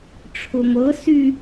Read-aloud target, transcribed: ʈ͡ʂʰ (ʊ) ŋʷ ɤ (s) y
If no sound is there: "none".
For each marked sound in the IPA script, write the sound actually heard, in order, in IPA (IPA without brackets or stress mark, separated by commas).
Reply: ʊ, s